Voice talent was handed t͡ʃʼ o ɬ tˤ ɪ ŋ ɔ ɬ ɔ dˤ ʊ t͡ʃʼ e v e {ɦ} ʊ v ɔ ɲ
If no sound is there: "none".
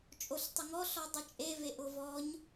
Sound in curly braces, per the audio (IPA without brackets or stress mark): ʔ